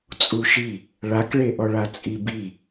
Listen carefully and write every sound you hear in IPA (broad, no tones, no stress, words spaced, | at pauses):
t͡sʼuʃi | ɭakɭeʔɔɭa t͡sʼibi